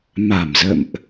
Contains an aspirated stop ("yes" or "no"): no